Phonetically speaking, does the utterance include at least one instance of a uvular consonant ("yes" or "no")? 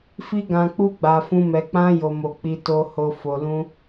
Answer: no